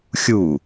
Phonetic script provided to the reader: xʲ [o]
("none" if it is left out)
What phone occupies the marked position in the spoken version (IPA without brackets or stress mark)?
u